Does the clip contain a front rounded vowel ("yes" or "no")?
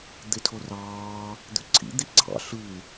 yes